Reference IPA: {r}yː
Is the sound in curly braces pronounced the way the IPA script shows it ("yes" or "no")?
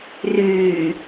yes